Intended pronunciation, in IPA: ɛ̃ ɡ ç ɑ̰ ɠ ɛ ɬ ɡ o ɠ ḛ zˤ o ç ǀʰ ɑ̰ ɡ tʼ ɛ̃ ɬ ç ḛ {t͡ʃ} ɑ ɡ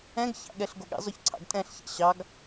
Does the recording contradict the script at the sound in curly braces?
yes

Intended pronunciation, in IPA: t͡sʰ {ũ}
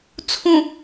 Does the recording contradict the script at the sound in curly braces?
no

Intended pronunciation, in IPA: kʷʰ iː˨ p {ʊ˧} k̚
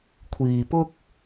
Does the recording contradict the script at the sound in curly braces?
yes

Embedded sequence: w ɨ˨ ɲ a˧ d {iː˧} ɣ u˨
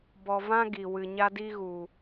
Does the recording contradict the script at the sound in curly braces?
yes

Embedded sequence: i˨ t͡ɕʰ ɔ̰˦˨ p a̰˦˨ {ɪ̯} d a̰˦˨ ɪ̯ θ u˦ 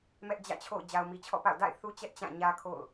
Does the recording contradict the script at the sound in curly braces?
yes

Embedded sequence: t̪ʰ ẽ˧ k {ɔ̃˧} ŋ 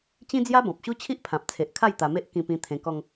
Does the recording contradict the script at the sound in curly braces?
yes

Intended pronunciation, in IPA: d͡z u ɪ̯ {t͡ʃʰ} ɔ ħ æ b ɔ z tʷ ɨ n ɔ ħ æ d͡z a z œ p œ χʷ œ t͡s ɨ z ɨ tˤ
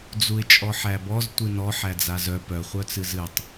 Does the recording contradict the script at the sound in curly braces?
yes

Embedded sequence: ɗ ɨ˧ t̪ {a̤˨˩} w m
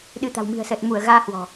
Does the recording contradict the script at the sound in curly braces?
no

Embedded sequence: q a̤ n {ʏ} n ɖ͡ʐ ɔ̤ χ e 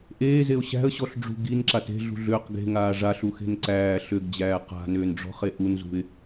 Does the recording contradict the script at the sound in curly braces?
yes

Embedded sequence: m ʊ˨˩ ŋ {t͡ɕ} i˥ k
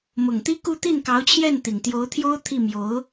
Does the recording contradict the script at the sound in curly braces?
yes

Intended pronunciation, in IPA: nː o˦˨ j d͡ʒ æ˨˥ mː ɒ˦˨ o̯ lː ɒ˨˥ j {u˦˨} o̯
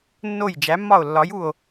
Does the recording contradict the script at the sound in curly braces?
no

